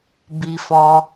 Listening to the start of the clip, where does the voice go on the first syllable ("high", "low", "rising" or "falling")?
low